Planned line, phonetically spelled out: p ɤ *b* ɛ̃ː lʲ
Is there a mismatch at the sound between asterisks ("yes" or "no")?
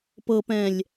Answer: yes